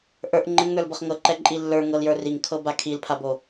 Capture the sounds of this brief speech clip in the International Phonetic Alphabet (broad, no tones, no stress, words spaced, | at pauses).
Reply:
ʔə˞ʔ ŋ͡ǃɘŋnə˞lbɤχ ŋɤǃɛǃʼi lːə˞ŋɤljə˞ riŋkʰɤba kʰilpʰabo